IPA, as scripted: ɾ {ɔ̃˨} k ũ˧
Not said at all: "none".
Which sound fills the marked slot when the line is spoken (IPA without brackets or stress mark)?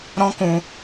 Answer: ɔ̃˦